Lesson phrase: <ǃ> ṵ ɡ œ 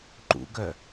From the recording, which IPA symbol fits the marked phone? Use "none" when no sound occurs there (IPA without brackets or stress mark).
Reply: ǃ